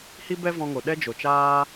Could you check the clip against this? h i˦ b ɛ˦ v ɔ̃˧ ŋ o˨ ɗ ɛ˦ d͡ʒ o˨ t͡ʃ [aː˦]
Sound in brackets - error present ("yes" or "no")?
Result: no